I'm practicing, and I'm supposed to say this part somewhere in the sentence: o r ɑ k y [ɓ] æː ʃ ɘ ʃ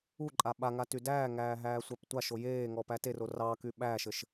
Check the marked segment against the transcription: correct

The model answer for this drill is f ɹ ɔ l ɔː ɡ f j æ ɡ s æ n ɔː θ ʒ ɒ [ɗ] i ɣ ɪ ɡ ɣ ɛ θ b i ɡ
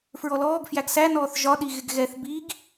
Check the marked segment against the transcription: correct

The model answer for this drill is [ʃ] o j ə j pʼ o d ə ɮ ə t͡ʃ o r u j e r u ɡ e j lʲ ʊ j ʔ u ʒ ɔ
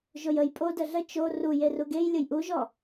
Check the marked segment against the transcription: incorrect: ʒ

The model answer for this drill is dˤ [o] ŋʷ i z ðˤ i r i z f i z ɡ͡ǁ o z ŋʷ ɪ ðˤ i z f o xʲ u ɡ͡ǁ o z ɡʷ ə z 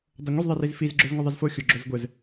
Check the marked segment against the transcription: correct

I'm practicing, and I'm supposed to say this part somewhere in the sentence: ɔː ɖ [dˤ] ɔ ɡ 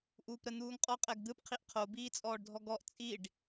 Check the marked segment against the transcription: incorrect: dʱ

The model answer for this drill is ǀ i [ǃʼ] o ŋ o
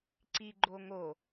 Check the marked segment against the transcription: incorrect: ɡ͡ǃ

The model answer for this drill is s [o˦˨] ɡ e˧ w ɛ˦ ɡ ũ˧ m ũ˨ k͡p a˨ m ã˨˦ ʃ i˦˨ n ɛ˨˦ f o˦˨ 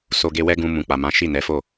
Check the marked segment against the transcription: incorrect: o˧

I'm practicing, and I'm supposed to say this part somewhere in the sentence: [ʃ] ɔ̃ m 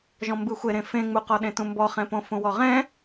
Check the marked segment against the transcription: incorrect: ʒ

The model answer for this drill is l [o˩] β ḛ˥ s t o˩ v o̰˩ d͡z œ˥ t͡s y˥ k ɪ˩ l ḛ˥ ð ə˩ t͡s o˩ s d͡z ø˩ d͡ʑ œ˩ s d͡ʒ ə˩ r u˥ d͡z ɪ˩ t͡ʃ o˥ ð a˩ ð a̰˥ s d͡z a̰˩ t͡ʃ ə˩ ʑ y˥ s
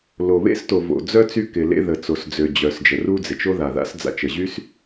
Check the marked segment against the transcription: correct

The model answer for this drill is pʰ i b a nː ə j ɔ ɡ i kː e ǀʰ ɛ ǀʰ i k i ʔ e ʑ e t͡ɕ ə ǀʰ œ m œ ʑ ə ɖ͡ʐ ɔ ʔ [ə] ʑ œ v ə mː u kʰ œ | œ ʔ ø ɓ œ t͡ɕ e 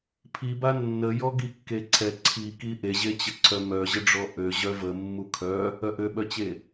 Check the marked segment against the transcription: incorrect: ø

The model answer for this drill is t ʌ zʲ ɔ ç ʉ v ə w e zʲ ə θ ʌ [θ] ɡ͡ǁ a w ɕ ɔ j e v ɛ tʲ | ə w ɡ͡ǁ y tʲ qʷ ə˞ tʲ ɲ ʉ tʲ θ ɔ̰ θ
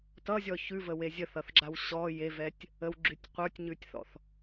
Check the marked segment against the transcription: correct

